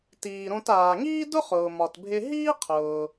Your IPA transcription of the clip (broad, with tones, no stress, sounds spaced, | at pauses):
t iː˩ ɾ õ˧ t aː˩ ŋ iː˥ d ʊ˥ χ ʊː˩ m ɒ˩ t bʱ ɪ˧ ɦ iː˥ qʰ ʊː˩